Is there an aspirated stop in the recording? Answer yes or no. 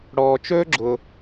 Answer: no